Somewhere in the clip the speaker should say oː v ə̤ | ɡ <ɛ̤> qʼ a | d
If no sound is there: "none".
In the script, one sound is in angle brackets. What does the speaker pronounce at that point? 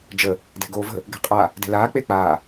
e̤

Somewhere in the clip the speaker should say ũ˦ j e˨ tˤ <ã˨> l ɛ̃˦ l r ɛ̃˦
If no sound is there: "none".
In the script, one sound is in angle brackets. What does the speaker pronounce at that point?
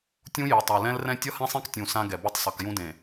a˨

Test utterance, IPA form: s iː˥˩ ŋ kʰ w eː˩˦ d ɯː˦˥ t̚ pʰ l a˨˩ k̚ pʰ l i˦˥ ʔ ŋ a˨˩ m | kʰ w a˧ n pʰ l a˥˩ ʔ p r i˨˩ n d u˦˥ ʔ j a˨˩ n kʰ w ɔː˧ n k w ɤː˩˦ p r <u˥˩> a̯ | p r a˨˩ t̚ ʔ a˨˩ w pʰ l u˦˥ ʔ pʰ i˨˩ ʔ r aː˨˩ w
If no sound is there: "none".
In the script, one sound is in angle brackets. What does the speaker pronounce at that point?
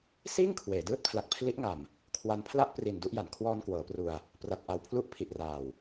u˧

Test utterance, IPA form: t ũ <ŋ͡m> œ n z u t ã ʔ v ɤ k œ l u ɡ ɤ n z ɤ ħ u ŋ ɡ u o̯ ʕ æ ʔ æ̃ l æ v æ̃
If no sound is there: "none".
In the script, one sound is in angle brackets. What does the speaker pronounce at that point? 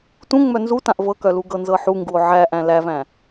ŋ͡m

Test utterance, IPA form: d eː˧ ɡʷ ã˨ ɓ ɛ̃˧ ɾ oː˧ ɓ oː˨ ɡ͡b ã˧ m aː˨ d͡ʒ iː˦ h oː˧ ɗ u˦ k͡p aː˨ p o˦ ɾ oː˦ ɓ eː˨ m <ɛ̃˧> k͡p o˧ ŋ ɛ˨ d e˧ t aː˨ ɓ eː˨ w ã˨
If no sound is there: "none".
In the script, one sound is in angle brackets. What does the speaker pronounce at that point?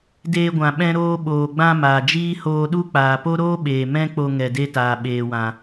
ɛ̃˦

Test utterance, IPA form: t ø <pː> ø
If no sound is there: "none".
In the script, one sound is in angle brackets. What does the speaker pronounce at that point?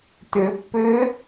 pː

